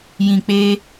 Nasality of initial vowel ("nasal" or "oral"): nasal